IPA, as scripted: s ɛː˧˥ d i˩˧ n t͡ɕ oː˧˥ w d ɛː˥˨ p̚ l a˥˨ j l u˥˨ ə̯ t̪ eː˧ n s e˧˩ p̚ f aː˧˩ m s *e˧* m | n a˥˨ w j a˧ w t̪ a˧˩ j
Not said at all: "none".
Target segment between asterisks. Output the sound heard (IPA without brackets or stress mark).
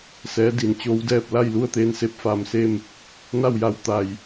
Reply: e˥˨